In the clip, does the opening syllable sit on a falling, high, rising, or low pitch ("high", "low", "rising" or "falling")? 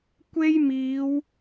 high